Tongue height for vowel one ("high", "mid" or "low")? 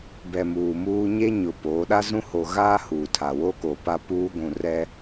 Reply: mid